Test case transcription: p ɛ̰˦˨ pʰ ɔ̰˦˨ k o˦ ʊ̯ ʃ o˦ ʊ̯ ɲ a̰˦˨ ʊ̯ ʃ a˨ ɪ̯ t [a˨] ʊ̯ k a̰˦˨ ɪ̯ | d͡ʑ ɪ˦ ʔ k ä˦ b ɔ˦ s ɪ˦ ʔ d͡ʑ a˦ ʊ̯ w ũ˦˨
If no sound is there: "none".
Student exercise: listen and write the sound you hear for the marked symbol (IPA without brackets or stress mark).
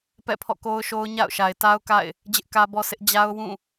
a˦